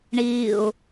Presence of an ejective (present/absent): absent